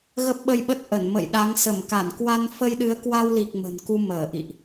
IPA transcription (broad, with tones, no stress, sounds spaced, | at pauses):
ɣ ə˦˥ p̚ ɓ ə˧ j ɓ ə˦˥ t̚ ʔ ə˧˩ n m ə̰˧˨ j ɗ a˨˦ ŋ s ə˧˩ m k a˧˩ n k w a˧ n f ə˧ j ɗ ɨ˨˦ ə̯ k w a˧ w l i˨˩ k̚ m ə̤˨˩ n k u˧ m əː˧˩ ʔ ḭ˧˨ ʔ